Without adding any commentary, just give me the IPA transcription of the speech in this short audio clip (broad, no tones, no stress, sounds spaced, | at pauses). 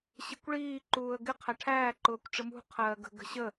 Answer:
ɕ ɪ kʷ ɭ iː ǃ uː ə̯ ɡ ɪ qʰ æ ʈʰ æː ǃ ʊː kʷ ʈ͡ʂ ɪ m ṳ qʰ ɜː ɡ ə̤ ɡ ə̤ ɕ ə